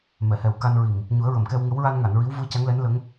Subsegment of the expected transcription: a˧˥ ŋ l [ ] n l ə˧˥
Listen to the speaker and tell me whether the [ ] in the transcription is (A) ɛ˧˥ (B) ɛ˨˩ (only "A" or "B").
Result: A